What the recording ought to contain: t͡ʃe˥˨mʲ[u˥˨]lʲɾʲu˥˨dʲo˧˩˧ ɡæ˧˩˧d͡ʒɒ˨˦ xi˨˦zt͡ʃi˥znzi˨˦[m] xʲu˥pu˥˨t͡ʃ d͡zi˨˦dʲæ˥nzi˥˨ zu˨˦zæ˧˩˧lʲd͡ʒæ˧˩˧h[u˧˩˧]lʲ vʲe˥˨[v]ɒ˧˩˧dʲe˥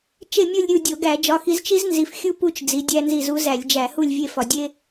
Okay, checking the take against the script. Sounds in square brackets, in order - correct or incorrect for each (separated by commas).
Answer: correct, incorrect, incorrect, incorrect